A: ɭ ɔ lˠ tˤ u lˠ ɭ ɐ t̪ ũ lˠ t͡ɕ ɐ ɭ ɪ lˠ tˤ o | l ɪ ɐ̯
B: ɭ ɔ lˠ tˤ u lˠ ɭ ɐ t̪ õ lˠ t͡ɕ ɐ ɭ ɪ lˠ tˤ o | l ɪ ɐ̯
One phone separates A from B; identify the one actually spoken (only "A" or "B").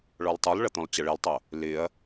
B